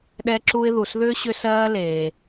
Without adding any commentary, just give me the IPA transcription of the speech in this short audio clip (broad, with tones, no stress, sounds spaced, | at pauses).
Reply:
ɗ ɛ˥ ǁ u˥ ɪ̯ ð u˩ s ð ʏː˥ ɕ ʏ˥ s ɜː˥ l eː˩